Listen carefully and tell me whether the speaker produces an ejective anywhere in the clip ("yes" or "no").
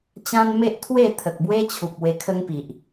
no